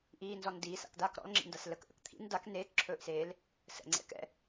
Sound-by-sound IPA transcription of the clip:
ʔ iː n z ɔ n d iː s a̰ k d aː k ɾ ɔ̰ l ŋ͡ǁ ḭ n d a s l ə k ʔ ə̰ k t̪ʰ ḭ n d a k n eː k ǁʰ ɵː ʔ s eː l | s ə̰ ŋ͡ǀ ɛ̰ k ɛ̰

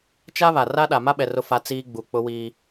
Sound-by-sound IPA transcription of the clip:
t͡ʃ a˦ β a˨ r a˦ ɗ a˨ m a˦ ɓ ɛ˨ r ʊ˦ f a˦ t͡s iː˦ ɡ͡b u˨ k͡p ʊ˦ w iː˦

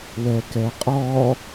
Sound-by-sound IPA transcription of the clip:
w ɛ k ɛ qʼ ɔ

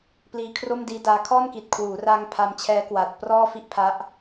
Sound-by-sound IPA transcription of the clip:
p l iː˧ kʰ r o˥˩ m d iː˦˥ d aː˦˥ kʰ ɔː˥˩ n k i˨˩ t̚ kʰ w uː˩˦ r aː˧ ŋ pʰ a˧ m t͡ɕʰ ɛː˦˥ k w aː˨˩ t̚ p r ɔː˥˩ f i˥˩ ʔ pʰ a˦˥ ʔ

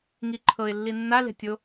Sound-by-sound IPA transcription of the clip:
ŋ i ǃʰ ɤ ɪ̯ lː i nː a l e̤ tʲ o

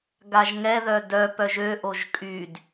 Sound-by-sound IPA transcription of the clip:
ɡ a ʒ ŋ ɛ ð œ d œ p œ ʒ ø ʔ o ʒ kʼ y d

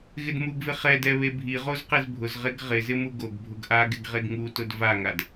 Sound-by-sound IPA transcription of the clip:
ɣ ɪ d m u ɡ v ɪ χ ɛ d ɛ β e bʱ i ʁ o z q e z bʱ ʊ z ʁ e ɡ ʁ ɪ z ɪ m u ɡ o ɡ bʱ ʊ ɡ ʔ a ɡ ɪ ɡ ʁ e ɡ ŋ u t ʊ d v a ŋ a d

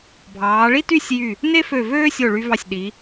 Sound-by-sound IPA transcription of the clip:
bʱ ɑː˩˧ ɭ i˥ t y˥˧ sʲ j y˧˩ | n e˥ f ø˧˩ v øː˥ sʲ o˧˩ ɭ y˧ v ɑ˧˩ sʲ ɗ i˩˧

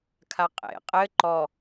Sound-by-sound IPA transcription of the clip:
kʰ a qʼ ḛ qʼ ɘ ǃ ɔ

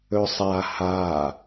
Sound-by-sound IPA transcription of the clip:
ɵ sˤ a h a

